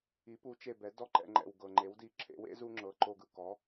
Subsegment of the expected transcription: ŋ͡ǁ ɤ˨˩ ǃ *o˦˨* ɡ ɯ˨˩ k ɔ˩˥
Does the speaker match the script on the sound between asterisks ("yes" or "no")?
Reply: yes